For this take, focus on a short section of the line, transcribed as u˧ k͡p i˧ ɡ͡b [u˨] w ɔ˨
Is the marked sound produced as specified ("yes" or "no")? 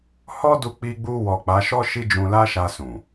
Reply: no